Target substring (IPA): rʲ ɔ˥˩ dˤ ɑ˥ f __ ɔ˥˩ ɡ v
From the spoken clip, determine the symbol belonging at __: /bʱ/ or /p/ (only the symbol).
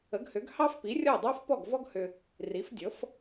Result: p